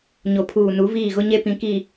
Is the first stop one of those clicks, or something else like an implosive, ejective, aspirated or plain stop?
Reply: aspirated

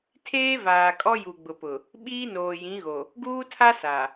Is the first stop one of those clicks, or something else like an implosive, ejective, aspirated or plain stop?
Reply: aspirated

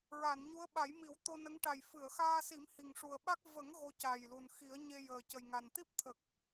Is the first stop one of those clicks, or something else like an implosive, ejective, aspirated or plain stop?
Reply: implosive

